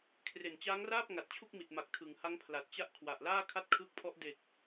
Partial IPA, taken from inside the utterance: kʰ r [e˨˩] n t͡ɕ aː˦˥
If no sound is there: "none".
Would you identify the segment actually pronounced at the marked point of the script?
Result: e˨˩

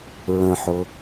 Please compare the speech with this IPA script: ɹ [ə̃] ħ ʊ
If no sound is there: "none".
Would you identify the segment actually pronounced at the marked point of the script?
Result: ə̃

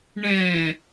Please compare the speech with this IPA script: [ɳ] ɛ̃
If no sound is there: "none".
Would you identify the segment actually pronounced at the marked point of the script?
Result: ɳ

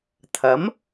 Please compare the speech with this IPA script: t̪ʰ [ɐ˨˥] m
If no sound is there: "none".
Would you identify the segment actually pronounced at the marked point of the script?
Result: ɐ˨˥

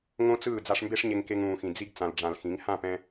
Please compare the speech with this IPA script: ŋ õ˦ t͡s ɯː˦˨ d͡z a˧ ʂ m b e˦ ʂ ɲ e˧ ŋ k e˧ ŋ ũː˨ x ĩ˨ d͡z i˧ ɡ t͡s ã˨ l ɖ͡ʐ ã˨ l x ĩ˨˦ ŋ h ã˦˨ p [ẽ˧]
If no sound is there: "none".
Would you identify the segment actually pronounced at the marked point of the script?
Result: ɛ̃˧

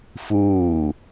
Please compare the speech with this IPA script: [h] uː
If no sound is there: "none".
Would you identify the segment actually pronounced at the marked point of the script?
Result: f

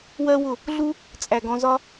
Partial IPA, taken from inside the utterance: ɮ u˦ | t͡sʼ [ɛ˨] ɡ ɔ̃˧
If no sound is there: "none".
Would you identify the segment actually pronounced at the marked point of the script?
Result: æ˨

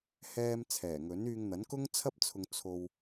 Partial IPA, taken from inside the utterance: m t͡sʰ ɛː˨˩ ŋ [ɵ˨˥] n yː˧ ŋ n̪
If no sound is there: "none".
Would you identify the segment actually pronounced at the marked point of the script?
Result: ɵ˨˥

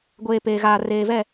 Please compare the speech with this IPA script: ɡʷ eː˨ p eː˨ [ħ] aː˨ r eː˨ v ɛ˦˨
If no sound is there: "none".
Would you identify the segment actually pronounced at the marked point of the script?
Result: ɣ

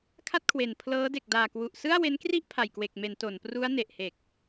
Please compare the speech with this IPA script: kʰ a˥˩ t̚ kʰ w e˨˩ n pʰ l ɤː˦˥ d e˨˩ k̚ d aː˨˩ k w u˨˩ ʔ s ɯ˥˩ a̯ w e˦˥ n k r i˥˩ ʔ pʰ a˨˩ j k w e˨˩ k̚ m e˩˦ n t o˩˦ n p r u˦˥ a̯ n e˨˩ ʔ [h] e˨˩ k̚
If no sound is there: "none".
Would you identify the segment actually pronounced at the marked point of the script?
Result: h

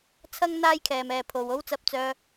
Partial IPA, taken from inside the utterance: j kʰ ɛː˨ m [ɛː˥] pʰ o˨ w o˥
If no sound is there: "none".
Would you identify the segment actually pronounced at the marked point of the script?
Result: ɛː˨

